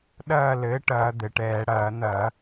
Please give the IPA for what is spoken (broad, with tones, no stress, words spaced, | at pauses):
ɗɐː˥˨ lɘː˩˥ʈɐː˧˩˧ d̪ɘ˩ʈɛː˧˩˧ ɽɐː˧˩˧n̪ɐ˧˩˧